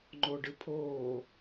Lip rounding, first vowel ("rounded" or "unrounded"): rounded